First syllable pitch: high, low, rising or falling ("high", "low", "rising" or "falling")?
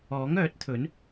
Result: rising